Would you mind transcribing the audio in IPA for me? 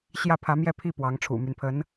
ɕ j ä˥˩ pʰ ä˧˥ m j ɛ˥˧ pʰ i˥˩ p w ɑ˧˥ ŋ ʈ͡ʂʰ ṵ˨˩ m y˦ n pʰ ə˧˥ n

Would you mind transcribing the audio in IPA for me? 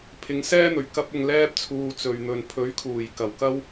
pʰ ɪ˨˧ ŋ s ɛː˥ n̪ ɵ˨˩ ɥ k ɐ˧ p̚ ʊ˨ ŋ l ɛː˧ p̚ t͡sʰ uː˨ t͡s ɵ˨ ɥ n̪ ɵ˨ n pʰ ɵ˨˥ ɥ kʰ uː˨˩ j k ɐ˨˩ w k ɐ˥ w

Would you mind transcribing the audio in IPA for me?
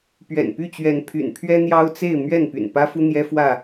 p ɥ ɛ̰˨˩ n p y˥˨ t͡ɕ ɥ ɛ˨˦ n pʰ y̰˨˩ n pʰ ɥ ɛ˦ n̪ j ɑ˦ ʊ̯ t͡s e˥˨ ɪ̯ m ɥ ɛ˥˨ n p y̰˨˩ n p ä˦ f u˦ n̪ j ɛ˦ f w ä˥˨

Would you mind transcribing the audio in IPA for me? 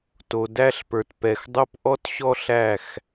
t o˨ d æ˦˨ ɬ p ə˞˨ t p ɛ˨ x dˤ o˦ p ʔ ɔ˦ t ɕ ɔ˦ ɬ æ˦˨ x

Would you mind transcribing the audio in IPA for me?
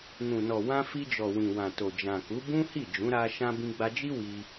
n ũ˨ n ɔ˨ w ã˧ f i˧ d͡ʒ ɔ˨ w ĩ˨ w ã˨ t o˨ d͡ʒ ã˨ k u˨˦ b ũ˦ h i˦˨ d͡ʒ ũ˨˦ ɾ a˧ ʃ ã˧ b ĩ˧ ɡ͡b a˧ d͡ʒ i˦ w i˧

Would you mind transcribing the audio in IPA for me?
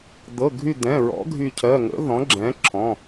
d̪ ɤ˩˧˩ ɡʱ y˧˩ d̪ ɛ̃˩˧˩ ɹ ɔ̰˩˥ ɡʱ y˧˩ cʰ ɜ˩˧˩ ŋ ə̰˩˥ ð ɔ̃˩˥ ɡ͡ǁ ɛ̃˩˥ ǁʰ ɔ̃˩˧˩

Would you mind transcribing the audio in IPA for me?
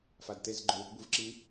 f a d t e z ɡ͡ǃ ʊ w i̤ b u v ǁ i

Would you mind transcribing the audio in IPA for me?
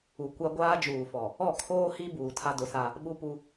u˨ kʷ a˦ ɡʷ aː˦ d͡ʒ uː˨ f ɔ˨ | ɔ˦˨ kʰ oː˦ h i˦ b uː˨ tʰ a˦ d ʊ˨˦ s a˦ | ɓ u˦ p u˦

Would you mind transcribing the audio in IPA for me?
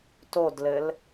t o d l ɘ l

